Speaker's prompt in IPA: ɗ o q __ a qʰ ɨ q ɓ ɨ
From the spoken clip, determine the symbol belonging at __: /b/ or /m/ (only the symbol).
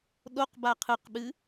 b